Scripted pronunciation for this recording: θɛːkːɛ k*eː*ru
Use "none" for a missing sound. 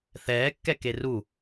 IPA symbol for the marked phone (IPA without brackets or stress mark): e